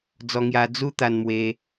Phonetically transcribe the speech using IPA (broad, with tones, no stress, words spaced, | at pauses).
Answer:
d͡zɔ˧ŋja˧ d͡zu˦t̪a˧nmwe˧